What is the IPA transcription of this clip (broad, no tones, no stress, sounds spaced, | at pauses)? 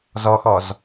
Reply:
z ɔ x ɔ z